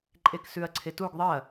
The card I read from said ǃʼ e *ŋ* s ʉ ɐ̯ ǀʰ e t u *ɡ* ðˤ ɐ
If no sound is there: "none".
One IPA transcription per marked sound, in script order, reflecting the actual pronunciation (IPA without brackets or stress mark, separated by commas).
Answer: k, ɡ